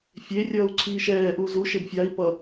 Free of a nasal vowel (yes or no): yes